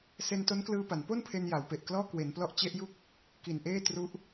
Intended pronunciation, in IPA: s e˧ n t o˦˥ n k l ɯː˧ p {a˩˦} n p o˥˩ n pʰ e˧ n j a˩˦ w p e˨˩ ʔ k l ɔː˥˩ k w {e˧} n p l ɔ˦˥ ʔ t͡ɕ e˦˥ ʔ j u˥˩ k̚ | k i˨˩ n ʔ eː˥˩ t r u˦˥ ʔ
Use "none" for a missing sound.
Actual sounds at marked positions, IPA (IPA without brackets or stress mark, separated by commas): a˩˦, e˩˦